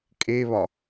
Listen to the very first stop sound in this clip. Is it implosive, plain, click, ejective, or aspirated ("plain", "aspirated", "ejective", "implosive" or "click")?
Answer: ejective